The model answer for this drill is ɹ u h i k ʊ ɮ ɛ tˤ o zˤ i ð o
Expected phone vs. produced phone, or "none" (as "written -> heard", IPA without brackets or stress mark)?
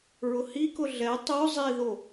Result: u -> ʊ